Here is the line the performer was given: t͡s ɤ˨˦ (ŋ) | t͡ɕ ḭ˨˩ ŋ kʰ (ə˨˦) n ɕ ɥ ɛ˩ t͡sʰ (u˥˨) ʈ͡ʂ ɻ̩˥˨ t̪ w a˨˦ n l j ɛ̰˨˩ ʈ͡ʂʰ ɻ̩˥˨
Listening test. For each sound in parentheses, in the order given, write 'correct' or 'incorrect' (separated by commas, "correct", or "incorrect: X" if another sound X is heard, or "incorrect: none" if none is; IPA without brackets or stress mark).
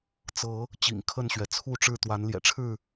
incorrect: none, incorrect: ə˥˨, correct